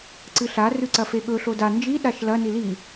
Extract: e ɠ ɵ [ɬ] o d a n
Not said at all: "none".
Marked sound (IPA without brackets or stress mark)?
ɬ